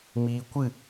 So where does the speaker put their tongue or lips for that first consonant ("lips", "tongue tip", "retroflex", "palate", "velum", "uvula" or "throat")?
lips